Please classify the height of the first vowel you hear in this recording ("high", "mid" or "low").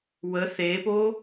mid